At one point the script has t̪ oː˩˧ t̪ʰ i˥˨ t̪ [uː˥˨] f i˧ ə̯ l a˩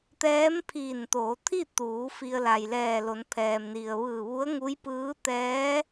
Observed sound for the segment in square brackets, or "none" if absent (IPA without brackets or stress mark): uː˩˧